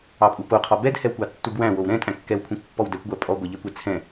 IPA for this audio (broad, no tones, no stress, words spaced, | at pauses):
ɑpʼupoqʰɔ bɛdhɛwkʷɑ tːubwæ̃wow ɾɛ̃tʼæ̃ kːɛwkʷʰɛ̃kʷ pːɔwdɛkʷɡʷæ pʼɔ ɡʷɛʎɛkʷɛ t͡sʰɛ̃